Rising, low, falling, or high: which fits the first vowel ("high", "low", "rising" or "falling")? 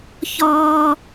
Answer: high